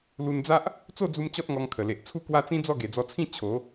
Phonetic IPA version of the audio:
l u˧ n d͡z a˦ ʔ | t͡s o˥˧ d͡z u˧ m t͡ɕ ɔ˦ t̚ ŋ ɔ˧ ŋ kʰ ə˨˩ l e˨ ʔ t͡sʰ u˥˧ k w a˦ t͡s ĩ˦ d͡z ɔ˥˧ ɡ e˨˩ d͡z ɔ˧ t͡sʰ ĩ˥˧ t͡ɕʰ o˨˦

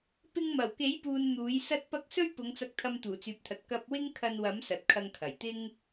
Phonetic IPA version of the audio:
p ɪ˧ ŋ m ɐ˨˩ w k e˨˥ j p uː˨ n n̪ uː˨˥ j s ɐ˥ t̚ p ɐ˥ k̚ s ɵ˥ ɥ p ʊ˨˧ ŋ t͡s ɐ˧ k̚ t̪ʰ ɐ˧ m t̪ uː˨˩ t͡s yː˨ p̚ t̪ʰ ɐ˨ t̚ k ɐ˧ p̚ w ɪ˥ ŋ kʰ ɐ˧ n w ɐ˨˥ m s ɐ˨ t̚ kʰ ɐ˧ ŋ kʰ ɐ˨˩ j t̪ ɪ˥ ŋ

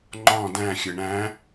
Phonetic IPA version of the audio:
ŋ͡ǃ ɔ̃ d æ̃ xʲ ɘ ɳ æ̃

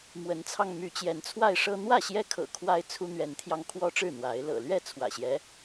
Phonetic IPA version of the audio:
m w ə˨˦ n t͡sʰ ɑ˧ ŋ m y˨˦ t͡ɕ j ɛ˨˦ n t͡sʰ w a˥˨ ɪ̯ ʂ ɤ˦ n̪ w ä˥˨ ɕ j ɛ˦ kʰ ɤ̰˨˩ kʰ w a˦ ɪ̯ t͡sʰ u˦ n̪ ɥ ɛ˨˦ n t̪ʰ j ɑ˧ ŋ kʰ w ɔ˦ ʈ͡ʂ ɻ̩˥˨ n̪ w a˨˦ ɪ̯ l ɤ̰˨˩ l ɥ ɛ˥˨ t͡sʰ w ä̰˨˩ ɕ j ɛ˦

